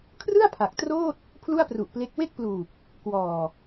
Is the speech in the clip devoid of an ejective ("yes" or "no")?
yes